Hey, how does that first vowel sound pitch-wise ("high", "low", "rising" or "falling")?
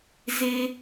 high